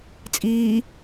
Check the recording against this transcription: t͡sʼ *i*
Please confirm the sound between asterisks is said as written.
no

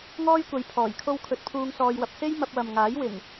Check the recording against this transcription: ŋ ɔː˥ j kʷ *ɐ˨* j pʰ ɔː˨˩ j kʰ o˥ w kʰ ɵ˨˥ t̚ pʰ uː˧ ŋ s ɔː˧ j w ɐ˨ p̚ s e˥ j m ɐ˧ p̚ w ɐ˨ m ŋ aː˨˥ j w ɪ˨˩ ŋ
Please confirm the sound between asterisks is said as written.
no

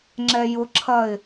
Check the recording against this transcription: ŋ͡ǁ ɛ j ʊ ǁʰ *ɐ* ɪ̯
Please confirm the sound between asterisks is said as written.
yes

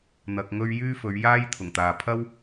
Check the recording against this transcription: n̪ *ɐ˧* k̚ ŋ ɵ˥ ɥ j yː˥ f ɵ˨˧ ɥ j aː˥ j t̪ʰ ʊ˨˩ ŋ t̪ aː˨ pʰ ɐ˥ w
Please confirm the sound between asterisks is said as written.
yes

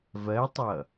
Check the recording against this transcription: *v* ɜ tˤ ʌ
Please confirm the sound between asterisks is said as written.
yes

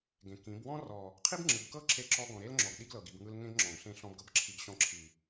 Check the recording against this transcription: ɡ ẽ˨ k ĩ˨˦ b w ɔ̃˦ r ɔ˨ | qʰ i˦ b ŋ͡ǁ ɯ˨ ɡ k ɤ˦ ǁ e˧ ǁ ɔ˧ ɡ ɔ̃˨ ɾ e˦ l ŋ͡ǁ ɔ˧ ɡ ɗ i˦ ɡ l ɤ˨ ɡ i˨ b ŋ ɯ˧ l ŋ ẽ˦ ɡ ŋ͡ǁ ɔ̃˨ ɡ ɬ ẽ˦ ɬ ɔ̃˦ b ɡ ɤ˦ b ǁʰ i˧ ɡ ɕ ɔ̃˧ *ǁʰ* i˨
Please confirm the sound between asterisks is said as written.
yes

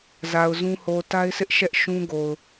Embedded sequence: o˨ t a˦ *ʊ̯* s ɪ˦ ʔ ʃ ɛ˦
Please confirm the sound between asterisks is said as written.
no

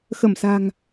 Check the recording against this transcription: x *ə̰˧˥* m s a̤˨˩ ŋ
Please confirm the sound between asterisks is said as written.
no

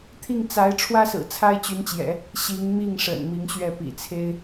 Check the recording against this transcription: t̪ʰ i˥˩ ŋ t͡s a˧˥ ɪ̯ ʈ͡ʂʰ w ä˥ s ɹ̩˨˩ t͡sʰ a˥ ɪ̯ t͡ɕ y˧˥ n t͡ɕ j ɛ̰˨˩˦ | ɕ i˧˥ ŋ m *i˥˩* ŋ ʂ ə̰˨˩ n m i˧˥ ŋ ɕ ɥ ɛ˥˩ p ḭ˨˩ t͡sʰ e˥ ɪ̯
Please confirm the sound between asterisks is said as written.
yes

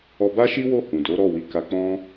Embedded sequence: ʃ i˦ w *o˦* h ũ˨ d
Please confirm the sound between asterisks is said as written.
no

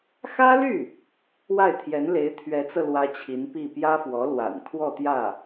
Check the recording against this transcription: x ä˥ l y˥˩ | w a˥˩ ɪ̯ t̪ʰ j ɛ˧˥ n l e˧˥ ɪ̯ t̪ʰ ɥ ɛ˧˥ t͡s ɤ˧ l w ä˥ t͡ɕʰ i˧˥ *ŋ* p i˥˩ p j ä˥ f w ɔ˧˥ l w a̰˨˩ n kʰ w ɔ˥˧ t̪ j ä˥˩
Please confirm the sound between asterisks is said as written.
no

